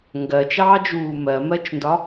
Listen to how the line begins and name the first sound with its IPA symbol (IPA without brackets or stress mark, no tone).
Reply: ŋ